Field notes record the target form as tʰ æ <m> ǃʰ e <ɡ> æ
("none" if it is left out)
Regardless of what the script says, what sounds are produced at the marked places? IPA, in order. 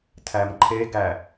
m, ɡ

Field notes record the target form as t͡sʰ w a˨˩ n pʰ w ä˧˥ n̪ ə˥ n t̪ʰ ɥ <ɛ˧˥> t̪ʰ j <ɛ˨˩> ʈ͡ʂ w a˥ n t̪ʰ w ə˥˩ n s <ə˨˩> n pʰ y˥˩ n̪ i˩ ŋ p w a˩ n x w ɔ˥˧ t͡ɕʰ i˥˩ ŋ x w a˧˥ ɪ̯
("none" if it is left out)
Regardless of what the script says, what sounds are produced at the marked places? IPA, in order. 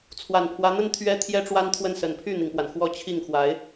ɛ˥, ɛ˥, ə˨˩

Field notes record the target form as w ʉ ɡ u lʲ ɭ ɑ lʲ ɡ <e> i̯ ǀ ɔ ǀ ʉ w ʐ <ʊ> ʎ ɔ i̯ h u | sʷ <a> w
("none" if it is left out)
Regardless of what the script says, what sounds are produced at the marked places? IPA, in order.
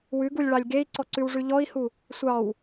e, ʉ, ɑ

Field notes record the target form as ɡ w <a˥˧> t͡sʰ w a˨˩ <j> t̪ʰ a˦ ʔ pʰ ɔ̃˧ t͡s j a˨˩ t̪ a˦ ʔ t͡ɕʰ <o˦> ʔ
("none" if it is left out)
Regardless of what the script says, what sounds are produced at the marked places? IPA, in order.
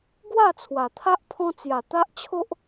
a˥˧, none, o˦

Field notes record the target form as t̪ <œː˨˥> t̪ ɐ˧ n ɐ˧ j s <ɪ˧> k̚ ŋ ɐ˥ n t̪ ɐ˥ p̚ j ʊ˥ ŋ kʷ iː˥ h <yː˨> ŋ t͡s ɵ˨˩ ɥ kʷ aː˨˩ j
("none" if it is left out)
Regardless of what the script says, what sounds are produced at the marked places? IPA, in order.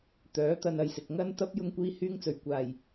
œː˨˥, ɪ˨, yː˥

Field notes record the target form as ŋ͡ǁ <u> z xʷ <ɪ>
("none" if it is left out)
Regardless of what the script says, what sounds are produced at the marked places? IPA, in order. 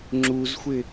u, ɪ

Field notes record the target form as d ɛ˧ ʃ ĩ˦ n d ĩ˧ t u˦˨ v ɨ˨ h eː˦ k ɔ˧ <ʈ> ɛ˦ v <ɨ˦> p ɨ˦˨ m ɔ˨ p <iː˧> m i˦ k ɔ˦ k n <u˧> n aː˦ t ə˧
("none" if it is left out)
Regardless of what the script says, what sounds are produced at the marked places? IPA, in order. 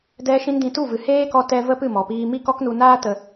t, ə˦, iː˧, u˧

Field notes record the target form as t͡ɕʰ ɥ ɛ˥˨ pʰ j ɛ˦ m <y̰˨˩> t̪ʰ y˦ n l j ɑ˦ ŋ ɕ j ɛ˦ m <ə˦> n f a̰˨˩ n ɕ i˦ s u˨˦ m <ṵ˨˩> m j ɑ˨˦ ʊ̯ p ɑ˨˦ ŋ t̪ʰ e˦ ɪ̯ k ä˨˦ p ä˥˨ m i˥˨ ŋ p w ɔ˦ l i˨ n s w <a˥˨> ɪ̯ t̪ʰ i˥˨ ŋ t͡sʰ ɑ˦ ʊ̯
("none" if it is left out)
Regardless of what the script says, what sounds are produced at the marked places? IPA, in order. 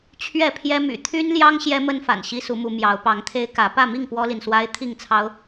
y̰˨˩, ə˦, u˨˦, a˦

